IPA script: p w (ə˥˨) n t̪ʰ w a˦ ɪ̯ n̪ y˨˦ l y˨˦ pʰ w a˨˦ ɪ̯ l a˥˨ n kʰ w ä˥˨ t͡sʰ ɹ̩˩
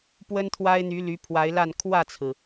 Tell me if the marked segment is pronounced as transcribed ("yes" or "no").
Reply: no